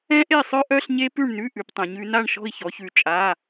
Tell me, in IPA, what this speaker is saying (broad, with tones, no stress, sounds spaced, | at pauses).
ɛ̃˦˥ ʔ e˦˨ sˤ œ˦˥ ʔ œ˧˥˧ ɬ ɲ e˦˥ p ʉ˦˨ ɳ n ʉ˧˥˧ ʔ ʉ˩˧ p tˤ ɛ̃˩˧ ɲ ʉ˩˧ n a˦˨ ɳ ʃ ɔ̤˦˨ i̯ ç ɔ˩˧ ç ʉ˩˧ t͡ʃʼ a˧˥˧